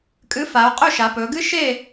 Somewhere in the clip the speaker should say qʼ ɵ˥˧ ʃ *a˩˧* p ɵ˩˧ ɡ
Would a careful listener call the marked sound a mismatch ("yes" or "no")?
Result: no